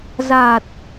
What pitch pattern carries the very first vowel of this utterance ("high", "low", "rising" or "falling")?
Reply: low